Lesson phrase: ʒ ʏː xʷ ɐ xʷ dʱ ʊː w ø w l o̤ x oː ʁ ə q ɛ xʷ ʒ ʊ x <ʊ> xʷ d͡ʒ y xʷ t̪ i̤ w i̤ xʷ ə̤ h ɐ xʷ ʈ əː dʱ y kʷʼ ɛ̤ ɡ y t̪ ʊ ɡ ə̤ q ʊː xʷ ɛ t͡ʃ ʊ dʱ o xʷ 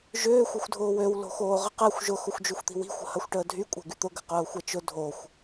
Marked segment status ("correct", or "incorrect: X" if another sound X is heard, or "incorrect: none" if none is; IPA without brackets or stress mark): correct